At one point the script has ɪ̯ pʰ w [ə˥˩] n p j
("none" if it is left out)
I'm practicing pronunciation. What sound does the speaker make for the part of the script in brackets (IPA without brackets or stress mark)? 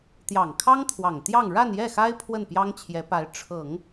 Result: ə˥˩